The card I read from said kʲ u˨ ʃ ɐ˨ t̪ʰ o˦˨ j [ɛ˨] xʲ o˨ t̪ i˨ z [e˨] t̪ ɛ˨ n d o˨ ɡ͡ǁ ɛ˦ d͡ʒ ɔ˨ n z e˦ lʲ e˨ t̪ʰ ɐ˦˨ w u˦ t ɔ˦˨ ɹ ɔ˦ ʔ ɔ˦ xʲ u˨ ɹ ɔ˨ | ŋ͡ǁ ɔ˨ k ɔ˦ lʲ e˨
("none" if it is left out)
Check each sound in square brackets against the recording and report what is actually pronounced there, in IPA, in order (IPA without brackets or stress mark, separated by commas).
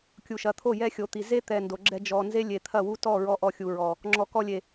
ɛ˦, e˦